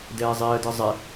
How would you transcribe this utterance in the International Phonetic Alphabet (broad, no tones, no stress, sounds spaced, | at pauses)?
d ɛː zˤ iː ə̯ d ɯ zˤ ɛ